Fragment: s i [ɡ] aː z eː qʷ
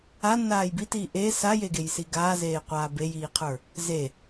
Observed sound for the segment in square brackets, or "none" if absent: ɡ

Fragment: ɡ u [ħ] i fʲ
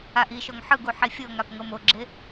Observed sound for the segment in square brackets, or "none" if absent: ħ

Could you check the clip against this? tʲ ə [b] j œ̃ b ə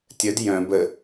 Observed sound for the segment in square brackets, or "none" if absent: d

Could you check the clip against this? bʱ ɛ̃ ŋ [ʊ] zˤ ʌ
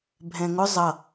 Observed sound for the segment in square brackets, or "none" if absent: ʊ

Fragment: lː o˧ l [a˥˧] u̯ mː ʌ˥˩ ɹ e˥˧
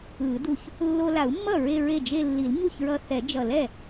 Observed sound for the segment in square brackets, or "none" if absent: a˨˩˦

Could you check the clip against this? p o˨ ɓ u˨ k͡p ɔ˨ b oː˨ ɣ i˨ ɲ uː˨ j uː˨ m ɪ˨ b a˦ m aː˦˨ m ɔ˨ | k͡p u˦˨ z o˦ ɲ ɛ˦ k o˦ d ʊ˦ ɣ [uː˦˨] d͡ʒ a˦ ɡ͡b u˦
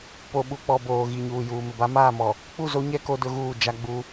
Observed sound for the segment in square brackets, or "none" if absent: uː˦˨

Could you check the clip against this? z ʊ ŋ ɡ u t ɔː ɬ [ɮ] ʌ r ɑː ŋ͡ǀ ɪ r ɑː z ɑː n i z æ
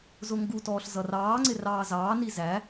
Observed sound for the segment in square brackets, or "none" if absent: z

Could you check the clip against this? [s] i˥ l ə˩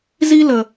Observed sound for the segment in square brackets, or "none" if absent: z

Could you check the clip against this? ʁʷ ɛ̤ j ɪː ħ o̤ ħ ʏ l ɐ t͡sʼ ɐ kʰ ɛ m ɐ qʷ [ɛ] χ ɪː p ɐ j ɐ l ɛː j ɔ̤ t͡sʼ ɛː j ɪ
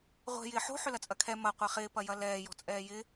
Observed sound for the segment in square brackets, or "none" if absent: ɛ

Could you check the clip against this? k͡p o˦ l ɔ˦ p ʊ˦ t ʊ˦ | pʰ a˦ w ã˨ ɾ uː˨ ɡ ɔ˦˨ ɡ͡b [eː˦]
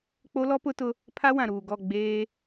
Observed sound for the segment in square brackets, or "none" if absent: eː˦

